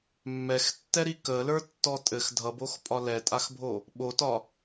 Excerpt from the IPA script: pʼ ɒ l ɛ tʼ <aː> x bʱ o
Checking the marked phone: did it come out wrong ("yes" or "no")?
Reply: yes